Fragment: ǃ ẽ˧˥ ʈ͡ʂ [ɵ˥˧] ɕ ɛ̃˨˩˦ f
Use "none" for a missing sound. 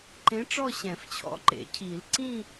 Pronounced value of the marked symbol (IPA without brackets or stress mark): ɔ˥˧